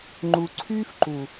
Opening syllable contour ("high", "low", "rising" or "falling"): low